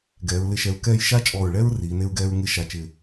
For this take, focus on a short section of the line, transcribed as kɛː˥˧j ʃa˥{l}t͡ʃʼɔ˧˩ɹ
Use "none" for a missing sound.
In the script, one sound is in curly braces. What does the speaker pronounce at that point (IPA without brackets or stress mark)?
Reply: none